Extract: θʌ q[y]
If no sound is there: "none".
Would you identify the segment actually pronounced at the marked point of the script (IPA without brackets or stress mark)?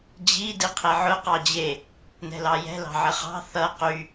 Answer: y